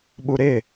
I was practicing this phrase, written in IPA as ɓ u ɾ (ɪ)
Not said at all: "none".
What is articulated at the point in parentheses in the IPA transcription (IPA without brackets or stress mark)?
ɪ